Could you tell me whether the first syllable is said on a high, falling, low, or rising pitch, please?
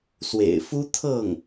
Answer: low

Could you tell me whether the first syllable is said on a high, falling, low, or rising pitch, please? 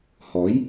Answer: rising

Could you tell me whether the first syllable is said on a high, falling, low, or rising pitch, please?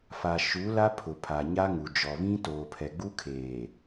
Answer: low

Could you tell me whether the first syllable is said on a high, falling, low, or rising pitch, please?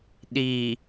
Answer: low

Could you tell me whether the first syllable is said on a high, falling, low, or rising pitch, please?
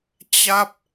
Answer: falling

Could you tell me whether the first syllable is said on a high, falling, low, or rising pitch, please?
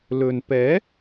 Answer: low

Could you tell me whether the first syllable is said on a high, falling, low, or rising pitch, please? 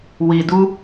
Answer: low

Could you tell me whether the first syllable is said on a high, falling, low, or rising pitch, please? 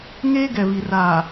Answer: high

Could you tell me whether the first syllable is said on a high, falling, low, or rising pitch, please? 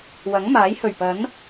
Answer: rising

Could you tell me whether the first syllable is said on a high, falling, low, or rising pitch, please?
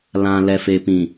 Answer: low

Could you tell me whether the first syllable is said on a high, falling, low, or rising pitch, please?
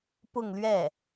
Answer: falling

